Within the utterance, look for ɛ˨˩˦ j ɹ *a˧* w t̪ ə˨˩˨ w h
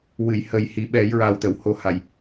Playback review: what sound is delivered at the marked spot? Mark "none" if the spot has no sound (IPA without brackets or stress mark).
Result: a˨˩